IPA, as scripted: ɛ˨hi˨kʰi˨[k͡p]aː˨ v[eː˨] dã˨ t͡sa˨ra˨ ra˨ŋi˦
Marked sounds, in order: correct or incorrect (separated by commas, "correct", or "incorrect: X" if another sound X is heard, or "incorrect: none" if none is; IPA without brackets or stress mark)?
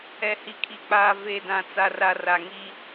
correct, incorrect: e˨